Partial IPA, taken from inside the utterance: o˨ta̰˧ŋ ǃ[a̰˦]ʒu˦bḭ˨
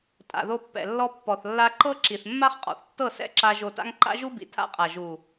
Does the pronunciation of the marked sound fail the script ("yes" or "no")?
no